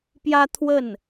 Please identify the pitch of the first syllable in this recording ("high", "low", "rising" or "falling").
high